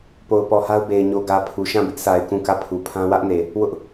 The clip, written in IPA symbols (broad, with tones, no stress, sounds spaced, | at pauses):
p o˨ ʊ̯ p ɔ˨ h a˦ ʊ̯ b e˨ ɪ̯ ɲ o˨ ɡ ä˨ pʰ u˨ ʃ ã˦˨ b ɪ˦ ʔ sʰ a˨ ɪ̯ k ũ˦˨ k ä˦˨ pʰ u˨ pʰ ã˦ w ä˦ ʔ n e˨ | w ʊ˦ ʔ